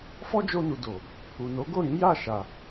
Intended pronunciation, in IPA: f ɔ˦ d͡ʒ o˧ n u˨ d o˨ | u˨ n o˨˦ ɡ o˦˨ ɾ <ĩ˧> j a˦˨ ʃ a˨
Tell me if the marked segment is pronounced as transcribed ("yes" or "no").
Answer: no